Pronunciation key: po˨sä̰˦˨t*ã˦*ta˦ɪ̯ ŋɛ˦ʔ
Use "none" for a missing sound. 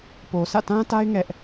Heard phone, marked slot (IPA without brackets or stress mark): ã˦